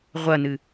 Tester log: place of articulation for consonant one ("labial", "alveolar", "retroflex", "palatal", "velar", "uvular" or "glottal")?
uvular